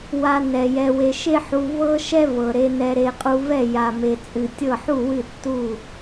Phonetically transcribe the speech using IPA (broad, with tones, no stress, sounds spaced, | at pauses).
w a˧ n ɛ˧ j ɛ˧ w e˧ ʃ e˦ ħ u˧ v ɤ˦ ʃ ɛ˦ v ɤ˨ ɾ e˧ n ɛ˧ ɾ e˧ qʼ u˧ v ɛ˦˨ j a˨ m e˨ t͡sʼ ɨ˨ tʲ ɤ˦˨ ħ u˦˨ w ɨ˦˨ tː u˦˨